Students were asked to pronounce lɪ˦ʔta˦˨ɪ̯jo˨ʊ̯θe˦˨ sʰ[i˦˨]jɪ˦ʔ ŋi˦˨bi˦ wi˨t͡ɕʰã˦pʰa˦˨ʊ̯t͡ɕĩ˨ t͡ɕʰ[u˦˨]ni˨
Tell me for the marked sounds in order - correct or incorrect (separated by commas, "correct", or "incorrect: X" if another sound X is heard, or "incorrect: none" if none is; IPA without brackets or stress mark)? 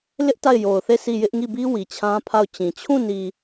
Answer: correct, incorrect: ũ˦˨